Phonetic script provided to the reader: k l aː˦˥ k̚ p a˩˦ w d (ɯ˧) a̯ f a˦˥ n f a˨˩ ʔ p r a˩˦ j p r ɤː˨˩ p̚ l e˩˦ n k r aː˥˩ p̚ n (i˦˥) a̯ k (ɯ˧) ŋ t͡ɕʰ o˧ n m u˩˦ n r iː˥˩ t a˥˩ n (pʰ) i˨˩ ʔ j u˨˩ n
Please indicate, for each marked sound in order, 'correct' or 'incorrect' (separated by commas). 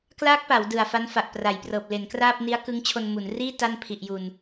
incorrect, correct, incorrect, correct